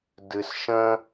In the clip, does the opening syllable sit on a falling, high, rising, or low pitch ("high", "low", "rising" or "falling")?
low